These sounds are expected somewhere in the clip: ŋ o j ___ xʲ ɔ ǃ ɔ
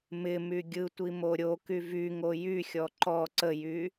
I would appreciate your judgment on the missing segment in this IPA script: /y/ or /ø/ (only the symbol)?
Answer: y